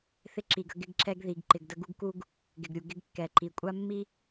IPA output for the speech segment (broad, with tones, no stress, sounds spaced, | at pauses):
θ ɪ˦ ǁ i˨ ɡ ə˦ ɡ ɪ˦ ɡ ǁ ɛ˦ ɡ ð i˨ ɡ ǃ ɪ˨ ɡ d ə˦ ɡ u˦ ɡ k u˦ ɡ | ɡ ɪ˨ ɡ ɾʲ u˨ ɡ ɪ˦ ɡ kː ɛ˨ ǃ i˨ kʷʼ a˦ mː i˦